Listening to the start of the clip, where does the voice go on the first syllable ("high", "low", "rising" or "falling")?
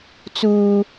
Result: high